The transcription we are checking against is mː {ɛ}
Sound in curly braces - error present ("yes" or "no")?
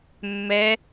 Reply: no